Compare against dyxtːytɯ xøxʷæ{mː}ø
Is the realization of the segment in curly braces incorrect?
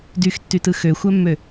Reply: no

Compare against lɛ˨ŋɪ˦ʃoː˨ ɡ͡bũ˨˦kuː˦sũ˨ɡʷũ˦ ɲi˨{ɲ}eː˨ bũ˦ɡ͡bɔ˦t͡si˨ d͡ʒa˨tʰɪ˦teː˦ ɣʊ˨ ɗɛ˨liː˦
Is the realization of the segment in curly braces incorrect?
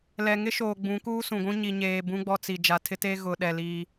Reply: no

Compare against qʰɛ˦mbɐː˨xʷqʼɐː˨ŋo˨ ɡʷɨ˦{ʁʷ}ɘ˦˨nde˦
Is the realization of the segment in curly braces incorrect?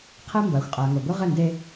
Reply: yes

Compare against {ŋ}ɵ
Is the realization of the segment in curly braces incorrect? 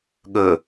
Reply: yes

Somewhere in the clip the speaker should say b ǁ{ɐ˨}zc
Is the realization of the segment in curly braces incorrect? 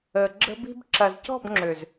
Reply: no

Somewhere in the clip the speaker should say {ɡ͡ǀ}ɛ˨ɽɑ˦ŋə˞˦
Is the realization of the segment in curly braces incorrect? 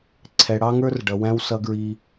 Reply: yes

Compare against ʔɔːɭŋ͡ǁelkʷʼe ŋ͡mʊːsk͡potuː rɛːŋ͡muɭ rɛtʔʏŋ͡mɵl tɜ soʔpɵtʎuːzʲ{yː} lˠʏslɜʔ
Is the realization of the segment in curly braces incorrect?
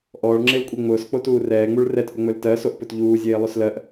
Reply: yes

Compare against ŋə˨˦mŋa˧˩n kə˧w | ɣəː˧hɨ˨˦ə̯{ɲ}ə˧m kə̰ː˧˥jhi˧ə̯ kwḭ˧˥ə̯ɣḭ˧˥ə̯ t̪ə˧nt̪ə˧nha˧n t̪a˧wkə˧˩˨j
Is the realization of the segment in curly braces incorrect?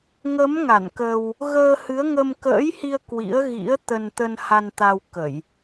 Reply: yes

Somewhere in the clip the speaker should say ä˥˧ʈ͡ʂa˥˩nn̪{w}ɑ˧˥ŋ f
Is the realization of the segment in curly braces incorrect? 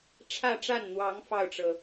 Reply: no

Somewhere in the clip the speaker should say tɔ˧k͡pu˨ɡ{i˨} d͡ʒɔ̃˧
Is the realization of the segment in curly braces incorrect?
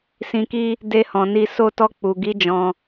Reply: yes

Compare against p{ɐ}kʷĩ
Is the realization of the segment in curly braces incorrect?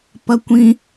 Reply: no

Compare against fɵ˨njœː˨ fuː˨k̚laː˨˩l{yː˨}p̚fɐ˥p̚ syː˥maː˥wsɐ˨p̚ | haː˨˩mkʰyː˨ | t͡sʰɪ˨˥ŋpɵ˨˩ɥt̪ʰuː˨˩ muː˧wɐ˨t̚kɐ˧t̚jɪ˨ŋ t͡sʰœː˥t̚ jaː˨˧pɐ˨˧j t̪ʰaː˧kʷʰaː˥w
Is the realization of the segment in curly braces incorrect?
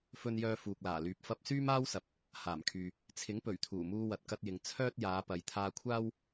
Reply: no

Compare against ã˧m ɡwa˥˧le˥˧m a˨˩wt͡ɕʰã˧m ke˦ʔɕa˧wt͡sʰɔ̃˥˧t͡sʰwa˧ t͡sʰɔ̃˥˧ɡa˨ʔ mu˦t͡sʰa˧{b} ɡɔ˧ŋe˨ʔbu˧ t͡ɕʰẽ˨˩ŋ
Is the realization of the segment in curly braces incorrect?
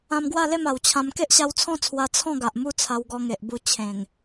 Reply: yes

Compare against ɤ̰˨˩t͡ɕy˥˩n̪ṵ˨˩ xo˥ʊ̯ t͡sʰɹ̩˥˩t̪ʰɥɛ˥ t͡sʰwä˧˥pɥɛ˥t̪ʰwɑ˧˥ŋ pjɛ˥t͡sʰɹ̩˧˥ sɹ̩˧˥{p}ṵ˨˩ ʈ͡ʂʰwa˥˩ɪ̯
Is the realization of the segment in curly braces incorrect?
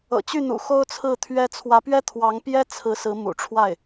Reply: yes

